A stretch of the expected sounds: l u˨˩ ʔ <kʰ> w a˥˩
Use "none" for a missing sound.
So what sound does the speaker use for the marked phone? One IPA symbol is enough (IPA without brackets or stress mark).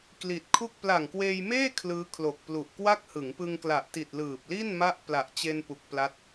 k